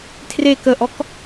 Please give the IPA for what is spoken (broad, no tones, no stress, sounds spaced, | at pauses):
tʰ r e k ə ʔ ɔ k